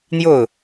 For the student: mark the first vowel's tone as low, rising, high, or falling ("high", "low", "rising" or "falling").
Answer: falling